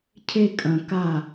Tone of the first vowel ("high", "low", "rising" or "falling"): high